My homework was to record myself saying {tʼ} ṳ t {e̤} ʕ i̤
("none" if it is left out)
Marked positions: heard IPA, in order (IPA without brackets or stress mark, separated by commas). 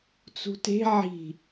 t͡s, e̤